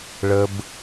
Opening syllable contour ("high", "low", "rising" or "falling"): high